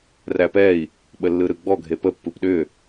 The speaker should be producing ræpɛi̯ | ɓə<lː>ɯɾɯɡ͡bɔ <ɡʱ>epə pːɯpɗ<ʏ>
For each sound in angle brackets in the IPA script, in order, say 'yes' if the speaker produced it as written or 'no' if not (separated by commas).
yes, yes, yes